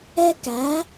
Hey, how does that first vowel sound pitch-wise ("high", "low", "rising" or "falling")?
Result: high